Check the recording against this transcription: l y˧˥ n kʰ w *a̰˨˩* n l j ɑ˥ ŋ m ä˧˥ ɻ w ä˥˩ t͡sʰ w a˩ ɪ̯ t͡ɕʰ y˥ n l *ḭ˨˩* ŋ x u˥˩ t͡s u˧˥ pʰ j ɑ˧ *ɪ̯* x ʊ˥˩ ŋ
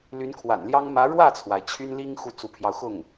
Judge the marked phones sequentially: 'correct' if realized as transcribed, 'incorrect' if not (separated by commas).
correct, incorrect, incorrect